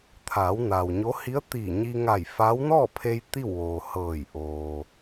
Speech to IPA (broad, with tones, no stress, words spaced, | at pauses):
t̪ʰaː˩˧w na˩wɲo˧˥ hi˧˥ə̯t̪iː˧˩ ɲi˧ŋa˧˩jfa˧˥w nɔː˥˨pʰe˧j t̪i˥˨wʋoː˩hɤː˧˩j ʔoː˩